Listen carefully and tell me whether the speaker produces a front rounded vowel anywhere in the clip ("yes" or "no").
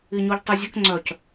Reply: yes